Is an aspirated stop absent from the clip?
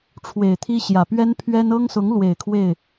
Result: no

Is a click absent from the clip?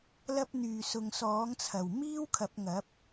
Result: yes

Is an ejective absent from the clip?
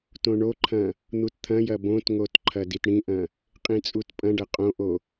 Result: no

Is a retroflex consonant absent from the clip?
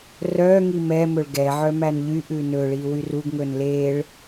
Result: no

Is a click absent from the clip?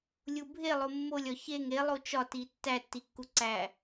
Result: no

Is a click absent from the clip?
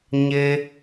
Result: yes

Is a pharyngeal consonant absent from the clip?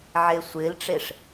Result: no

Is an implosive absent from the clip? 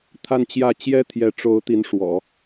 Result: yes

